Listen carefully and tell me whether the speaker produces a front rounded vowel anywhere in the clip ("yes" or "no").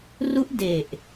no